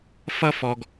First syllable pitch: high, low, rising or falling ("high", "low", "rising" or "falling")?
high